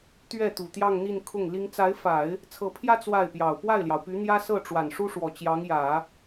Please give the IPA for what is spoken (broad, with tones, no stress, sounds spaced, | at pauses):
t̪ ɥ ɛ˥˩ t̪ u˨˩ t̪ j ɑ˥˧ ŋ n̪ i˥˧ n kʰ ʊ˥˩ ŋ l i˥ ŋ t͡s a˧˥ ɪ̯ f a˨˩˦ ɪ̯ | t͡sʰ ɤ˧˥ pʰ j ä˥ t͡s w a˥˩ ɪ̯ p j ɑ˨˩ ʊ̯ p w a˥˩ ɪ̯ l j ɑ˩ ʊ̯ p y˧˥ n̪ j ä˥ s ɤ˥˩ ʈ͡ʂ w a˨˩ n ʂ u˥ ʂ w ɔ˨˩ t͡ɕ j ɑ˧˥ ŋ j ä˨˩˦